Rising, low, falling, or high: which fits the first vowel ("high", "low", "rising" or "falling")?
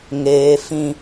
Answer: high